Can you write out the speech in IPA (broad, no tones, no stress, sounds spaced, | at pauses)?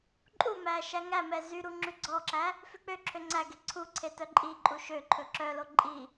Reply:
ǃʼ u m æ ʃ æ ŋ æ m ɛ z y ɾ u ŋ͡ǁ ʉ ɡ͡ǀ ɔ ǁ æ | f ʉ k͡p ø ǁʰ ø ŋ͡ǀ æ ɡ e ǀʰ u ǀʰ e t œ ǃʼ i ǃʼ u ʃ ø ǃʰ ɵ ǁ œ l o ǃʼ i